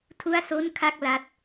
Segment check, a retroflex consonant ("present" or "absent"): absent